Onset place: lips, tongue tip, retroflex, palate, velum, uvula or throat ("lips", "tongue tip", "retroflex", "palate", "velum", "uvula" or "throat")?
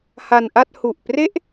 throat